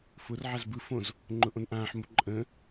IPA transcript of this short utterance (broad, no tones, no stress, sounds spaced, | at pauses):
f ʊ r ʕ a z b ɯ f õ z | ŋ͡ǃ ʊ ʔ õ n ʔ ãː ħ m ʊ ǃʼ ə̃